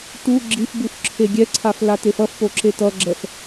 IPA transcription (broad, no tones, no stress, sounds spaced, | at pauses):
t u ɡ͡ǁ i f b u f ǁʰ e ɡʲ ɛ ǀʰ a f l a t e f ʌ f p o ǁ e t ʌ ɡ͡ǁ ɛ f